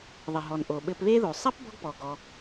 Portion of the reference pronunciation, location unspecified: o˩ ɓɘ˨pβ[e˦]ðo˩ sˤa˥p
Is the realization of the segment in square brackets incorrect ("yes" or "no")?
no